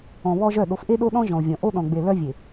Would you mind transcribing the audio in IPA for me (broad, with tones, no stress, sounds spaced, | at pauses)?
ɔ̃˨ β ɔ˦ ʒ œ˦˨ ɗ o˨ f ʔ e˦ ɗ o˦ ɗ ɔ̃˦ ʒ ɔ̃˨ ʊ̯ vʲ ɔ̃˨ ʔ o˦ ɗ ɔ̃˨ ɡ͡b e˨ l œ˦ vʲ e˨